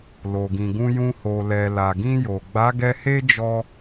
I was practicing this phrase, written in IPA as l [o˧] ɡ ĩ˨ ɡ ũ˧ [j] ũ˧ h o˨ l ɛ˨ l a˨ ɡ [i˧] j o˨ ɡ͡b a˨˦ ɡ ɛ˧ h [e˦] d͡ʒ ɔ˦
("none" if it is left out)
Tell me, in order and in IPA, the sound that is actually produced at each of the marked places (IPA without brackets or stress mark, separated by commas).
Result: o˨, j, ĩ˧, e˦